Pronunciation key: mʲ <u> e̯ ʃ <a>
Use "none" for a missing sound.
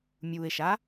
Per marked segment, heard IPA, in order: u, a

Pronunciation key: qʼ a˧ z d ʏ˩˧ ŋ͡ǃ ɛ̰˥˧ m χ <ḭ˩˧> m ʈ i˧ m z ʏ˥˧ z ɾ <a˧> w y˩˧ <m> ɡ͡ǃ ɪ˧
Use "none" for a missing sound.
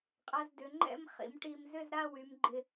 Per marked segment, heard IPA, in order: ḭ˩˧, a˥˧, m

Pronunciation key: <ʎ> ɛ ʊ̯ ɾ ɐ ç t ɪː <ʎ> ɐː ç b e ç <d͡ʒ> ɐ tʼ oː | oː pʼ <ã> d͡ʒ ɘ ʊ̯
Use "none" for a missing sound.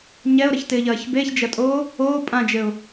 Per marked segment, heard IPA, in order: ɲ, ʎ, d͡ʒ, ã

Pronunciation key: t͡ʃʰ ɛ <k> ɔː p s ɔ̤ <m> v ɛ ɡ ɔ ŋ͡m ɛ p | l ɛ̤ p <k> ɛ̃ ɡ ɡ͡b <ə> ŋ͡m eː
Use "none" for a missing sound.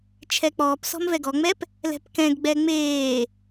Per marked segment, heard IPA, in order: k͡p, m, k, ɛ

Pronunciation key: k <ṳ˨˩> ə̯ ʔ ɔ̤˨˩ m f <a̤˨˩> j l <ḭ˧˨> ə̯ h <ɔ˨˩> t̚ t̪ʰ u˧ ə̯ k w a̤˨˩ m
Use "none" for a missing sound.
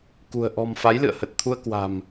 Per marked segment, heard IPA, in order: ṳ˨˩, a˨˦, ɨ̰˧˨, ə˨˩

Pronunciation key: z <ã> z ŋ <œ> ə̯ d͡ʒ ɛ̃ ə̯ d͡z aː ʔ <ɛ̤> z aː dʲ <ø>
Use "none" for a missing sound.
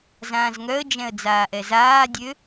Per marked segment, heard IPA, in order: ãː, œ, ɛ, ø

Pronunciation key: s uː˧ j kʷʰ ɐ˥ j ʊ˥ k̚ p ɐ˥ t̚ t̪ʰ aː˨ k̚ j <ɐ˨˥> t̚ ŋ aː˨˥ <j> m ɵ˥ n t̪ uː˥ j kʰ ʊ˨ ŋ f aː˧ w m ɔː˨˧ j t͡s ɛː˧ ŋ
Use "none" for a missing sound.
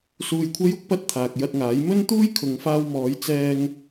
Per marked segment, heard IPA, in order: ɐ˧, j

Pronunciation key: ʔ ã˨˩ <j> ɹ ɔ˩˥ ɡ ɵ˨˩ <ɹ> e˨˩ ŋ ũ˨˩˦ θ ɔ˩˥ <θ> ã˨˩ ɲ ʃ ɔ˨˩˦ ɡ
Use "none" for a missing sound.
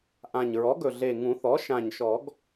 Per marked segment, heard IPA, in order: ɲ, ɮ, ʃ

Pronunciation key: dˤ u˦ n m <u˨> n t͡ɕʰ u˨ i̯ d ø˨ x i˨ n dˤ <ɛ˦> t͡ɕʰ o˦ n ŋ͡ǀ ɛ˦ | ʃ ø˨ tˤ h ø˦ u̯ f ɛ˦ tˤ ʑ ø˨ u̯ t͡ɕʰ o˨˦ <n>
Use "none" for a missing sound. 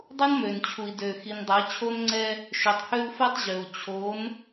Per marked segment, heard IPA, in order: ø˨, ɛ˨˦, n

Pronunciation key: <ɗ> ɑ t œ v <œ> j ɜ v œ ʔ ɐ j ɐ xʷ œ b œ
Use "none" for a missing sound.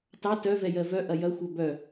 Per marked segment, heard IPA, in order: t, ɛ

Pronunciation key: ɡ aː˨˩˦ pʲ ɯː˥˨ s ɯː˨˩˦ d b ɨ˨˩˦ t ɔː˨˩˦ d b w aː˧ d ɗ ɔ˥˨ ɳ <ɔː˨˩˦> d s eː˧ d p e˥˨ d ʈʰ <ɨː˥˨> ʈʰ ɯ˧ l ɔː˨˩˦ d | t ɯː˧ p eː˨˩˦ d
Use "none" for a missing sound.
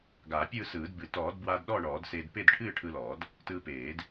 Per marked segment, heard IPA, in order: ɔː˨˩˦, ɨː˥˨

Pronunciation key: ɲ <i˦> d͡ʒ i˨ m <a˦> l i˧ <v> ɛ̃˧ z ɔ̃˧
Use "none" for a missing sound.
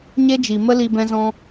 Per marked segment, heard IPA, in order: e˦, ə˦, b

